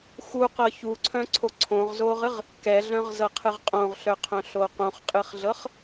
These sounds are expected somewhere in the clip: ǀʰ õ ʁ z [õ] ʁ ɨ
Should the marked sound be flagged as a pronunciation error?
yes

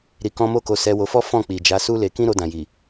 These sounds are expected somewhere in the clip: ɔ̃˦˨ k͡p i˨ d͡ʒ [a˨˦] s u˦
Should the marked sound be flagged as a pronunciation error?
no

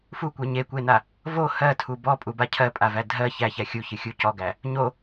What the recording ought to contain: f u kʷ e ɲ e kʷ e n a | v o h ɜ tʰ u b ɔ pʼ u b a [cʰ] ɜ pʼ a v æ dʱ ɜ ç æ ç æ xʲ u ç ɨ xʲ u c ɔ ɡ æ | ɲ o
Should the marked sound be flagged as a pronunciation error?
no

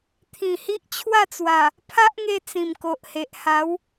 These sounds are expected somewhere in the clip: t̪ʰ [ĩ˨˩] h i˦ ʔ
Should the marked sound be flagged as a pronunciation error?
no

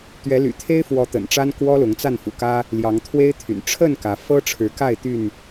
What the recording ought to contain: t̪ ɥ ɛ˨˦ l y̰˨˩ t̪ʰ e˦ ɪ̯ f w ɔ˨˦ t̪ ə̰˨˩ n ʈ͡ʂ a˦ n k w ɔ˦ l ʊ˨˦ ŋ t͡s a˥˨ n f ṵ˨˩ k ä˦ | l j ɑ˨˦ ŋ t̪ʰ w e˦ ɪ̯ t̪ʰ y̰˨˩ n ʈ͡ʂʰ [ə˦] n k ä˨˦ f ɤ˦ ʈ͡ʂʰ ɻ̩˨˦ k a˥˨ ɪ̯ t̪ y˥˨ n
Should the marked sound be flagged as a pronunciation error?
yes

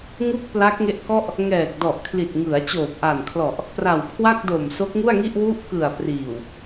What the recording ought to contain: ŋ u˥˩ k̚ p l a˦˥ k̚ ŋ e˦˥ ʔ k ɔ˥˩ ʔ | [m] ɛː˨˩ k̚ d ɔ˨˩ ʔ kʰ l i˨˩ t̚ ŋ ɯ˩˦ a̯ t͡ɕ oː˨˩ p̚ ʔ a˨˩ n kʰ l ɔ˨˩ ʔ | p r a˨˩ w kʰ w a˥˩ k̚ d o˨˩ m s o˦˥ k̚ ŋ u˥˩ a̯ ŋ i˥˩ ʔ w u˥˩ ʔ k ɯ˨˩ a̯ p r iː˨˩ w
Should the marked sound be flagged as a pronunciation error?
yes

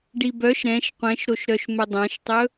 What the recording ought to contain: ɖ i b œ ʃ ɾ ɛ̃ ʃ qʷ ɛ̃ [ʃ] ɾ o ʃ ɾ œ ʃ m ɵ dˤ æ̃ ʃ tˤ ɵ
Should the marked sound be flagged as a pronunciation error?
no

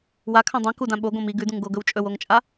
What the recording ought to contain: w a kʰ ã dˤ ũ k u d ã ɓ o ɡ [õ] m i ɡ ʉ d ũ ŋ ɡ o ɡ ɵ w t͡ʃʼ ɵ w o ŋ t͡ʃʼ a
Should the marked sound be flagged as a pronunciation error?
no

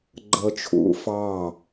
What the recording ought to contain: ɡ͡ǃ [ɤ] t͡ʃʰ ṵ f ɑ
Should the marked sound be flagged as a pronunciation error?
no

